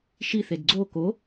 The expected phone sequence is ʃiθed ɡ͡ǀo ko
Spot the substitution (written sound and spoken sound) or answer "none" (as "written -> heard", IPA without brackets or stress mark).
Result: none